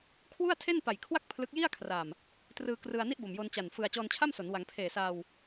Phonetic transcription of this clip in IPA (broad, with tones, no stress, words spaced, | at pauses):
kʰwu˥˩a̯ tʰe˥˩npa˨˩jkʰwa˥˩k̚ pʰlɯ˦˥k̚ ji˥˩a̯kʰra˨˩m | trɯː˧krɯ˧a̯ni˥˩ʔ bo˨˩mjo˧nt͡ɕa˨˩nfɯ˧a̯ t͡ɕɔː˧nt͡ɕʰa˥˩mso˩˦n wa˩˦ŋ pʰeː˨˩sa˧w